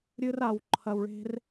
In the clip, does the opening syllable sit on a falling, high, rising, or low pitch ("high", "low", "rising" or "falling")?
high